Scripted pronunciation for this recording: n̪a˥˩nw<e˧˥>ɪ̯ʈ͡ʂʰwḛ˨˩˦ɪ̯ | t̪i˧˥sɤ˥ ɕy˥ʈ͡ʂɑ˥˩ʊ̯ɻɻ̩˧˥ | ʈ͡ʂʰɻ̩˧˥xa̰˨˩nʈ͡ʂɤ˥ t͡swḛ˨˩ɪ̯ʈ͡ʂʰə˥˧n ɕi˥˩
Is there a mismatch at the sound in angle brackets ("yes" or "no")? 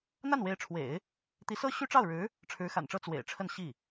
no